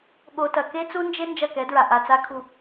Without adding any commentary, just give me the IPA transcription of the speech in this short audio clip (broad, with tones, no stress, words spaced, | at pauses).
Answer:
ɠo˨tɐ˨ ke˦ t͡su˦nd͡ʒe˦ nd͡ʒɐ˦˨kɛ˨˦dɹa˨ ʔa˨t͡sa˦kʰu˦˨